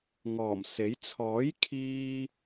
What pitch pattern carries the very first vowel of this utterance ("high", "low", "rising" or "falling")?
low